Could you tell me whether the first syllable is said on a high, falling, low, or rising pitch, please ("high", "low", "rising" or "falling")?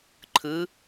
rising